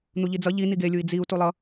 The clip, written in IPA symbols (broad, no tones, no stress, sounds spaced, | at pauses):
n̪ u ʎ i d͡z ʌ ʎ i n i ɡ e lʲ u i̯ d͡z i u̯ t u lˠ ʌ